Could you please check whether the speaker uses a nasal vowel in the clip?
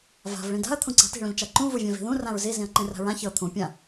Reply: yes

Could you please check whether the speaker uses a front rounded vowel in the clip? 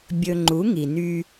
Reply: yes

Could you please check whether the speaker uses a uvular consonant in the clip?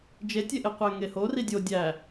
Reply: yes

